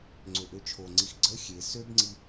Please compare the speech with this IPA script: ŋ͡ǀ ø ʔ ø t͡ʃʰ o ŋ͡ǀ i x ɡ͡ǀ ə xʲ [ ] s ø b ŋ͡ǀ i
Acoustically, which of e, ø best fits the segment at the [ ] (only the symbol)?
e